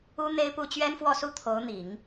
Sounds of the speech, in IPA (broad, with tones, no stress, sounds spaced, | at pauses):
u˥ n̪ e˥ ɪ̯ p u˥˩ t͡ɕ ɥ ɛ˥ n f w ɔ˥˧ s u˥˩ t̪ʰ o˧˥ ʊ̯ n̪ i˨˩˦ ŋ